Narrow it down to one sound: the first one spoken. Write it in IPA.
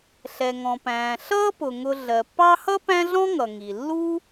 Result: ɬ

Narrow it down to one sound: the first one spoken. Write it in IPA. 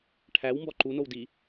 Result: ʈʰ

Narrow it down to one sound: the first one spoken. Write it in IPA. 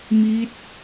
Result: m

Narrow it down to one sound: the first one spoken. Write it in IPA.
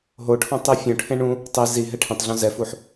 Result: ɦ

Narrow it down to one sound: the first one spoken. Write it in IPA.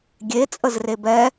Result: ɡʲ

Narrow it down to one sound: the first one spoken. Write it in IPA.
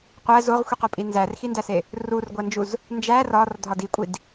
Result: qʷ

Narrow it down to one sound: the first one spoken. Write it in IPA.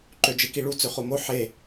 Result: ǃ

